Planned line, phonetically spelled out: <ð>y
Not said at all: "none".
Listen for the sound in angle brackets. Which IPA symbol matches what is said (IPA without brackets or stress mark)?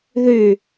ð